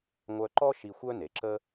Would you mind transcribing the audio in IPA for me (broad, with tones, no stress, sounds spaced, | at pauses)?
ŋʷ œ˧ ǃ ɔ˥ ʃ i˧ xʷ œ˥ n e˩ ǁ ə˥